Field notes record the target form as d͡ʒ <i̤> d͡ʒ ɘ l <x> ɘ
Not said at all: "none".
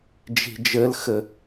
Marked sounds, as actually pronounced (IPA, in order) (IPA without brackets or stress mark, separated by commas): i̤, x